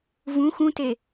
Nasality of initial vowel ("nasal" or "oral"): nasal